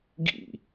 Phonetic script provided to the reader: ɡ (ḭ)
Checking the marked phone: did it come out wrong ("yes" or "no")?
no